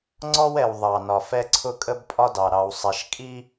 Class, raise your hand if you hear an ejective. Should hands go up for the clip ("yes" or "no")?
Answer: yes